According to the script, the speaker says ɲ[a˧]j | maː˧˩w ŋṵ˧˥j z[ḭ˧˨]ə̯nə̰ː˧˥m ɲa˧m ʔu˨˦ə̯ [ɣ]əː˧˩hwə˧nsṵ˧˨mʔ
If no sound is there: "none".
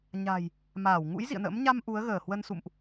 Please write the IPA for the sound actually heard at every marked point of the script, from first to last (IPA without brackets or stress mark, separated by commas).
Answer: a̤˨˩, ḭ˧˨, ɣ